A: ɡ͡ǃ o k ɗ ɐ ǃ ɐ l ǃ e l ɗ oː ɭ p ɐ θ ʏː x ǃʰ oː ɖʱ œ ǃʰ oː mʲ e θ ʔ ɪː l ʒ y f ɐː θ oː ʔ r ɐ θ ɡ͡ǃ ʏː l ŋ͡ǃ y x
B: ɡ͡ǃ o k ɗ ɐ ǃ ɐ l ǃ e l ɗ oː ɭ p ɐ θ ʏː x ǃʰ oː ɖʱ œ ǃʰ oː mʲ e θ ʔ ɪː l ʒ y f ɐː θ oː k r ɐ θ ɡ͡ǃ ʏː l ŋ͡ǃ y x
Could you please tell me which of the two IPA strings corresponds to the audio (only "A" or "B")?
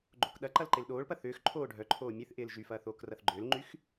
B